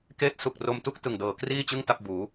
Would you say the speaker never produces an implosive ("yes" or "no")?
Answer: yes